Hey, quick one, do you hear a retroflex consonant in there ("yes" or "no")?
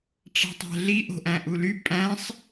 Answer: yes